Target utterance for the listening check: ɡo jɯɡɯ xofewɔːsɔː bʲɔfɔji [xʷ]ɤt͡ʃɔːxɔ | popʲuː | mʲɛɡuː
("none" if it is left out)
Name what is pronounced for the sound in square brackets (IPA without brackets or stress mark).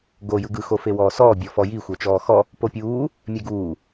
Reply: xʷ